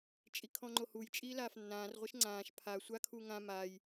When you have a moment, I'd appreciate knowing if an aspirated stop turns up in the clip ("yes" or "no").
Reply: yes